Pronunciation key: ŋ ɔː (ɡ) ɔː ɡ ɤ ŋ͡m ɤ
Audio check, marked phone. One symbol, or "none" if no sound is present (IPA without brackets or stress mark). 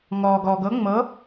ɡ